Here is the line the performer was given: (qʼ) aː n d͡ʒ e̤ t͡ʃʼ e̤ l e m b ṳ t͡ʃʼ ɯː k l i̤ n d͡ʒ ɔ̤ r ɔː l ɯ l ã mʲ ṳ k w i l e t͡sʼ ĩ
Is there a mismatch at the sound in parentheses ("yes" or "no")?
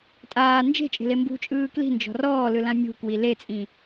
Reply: yes